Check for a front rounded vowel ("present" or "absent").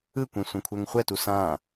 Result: absent